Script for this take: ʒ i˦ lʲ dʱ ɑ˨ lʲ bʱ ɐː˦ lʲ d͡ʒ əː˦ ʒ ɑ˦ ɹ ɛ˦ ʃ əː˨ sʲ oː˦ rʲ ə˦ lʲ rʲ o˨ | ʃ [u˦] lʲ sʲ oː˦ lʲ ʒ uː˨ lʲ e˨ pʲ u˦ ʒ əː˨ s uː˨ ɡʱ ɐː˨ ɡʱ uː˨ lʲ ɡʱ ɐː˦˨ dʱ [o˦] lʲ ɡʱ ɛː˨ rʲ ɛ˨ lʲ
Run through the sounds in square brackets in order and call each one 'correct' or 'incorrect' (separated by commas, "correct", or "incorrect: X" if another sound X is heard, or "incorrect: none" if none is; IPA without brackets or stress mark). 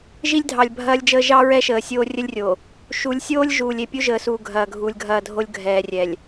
incorrect: u˨˦, correct